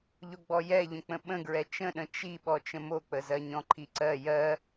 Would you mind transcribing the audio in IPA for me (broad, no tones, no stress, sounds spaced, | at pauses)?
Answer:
ʎ o ɡ͡b ɔ j ɛ ʎ ə̃ k͡p ə̃ ɓ ə̃ ɡ ɹ ɛ t͡ʃ ə̃ ɗ ə̃ t͡ʃ i ɓ ɔ t͡ʃ ə̃ m o k͡p ə z ɜ ɲ ɔ̃ ǃʰ i ǀ ɜ j ɜ